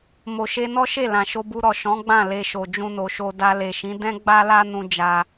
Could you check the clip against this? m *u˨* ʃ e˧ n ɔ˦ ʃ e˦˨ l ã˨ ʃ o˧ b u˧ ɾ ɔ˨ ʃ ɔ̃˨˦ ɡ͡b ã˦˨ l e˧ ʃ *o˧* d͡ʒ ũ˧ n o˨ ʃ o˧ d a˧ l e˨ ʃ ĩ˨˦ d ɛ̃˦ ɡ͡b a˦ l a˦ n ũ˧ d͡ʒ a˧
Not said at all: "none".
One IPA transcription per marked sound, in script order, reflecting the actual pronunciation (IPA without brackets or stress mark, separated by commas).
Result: o˨, o˨